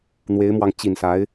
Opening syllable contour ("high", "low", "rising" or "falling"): rising